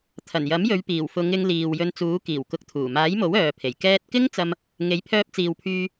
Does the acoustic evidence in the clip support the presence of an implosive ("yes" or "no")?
no